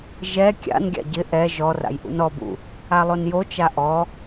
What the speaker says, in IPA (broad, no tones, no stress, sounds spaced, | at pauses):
ʒ ɛ kʲ a̰ n ɡʲ a̰ ɟ ɪ ʔ ɛ ʒ ɔ r a̰ j ʔ ṵ n ɔ b ṵ | a lˠ o n j o t͡ʃ a ʔ ɔ